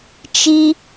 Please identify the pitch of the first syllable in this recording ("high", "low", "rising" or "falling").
low